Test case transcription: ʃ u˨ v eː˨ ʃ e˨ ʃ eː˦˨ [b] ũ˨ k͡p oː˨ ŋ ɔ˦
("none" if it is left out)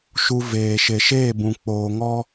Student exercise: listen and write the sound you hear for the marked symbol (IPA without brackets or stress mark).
b